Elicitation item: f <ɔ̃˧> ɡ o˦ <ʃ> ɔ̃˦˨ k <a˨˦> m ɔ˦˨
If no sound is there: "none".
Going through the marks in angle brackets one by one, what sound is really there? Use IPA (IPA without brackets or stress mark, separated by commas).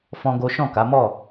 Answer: ɔ̃˦, ʃ, a˨˦